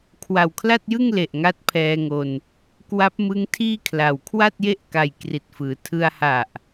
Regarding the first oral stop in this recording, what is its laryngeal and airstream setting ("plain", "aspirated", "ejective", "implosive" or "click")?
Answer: aspirated